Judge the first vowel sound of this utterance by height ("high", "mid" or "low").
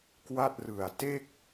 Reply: low